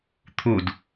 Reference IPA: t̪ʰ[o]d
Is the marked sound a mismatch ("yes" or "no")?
yes